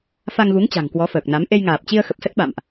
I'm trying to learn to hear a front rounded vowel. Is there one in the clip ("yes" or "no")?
no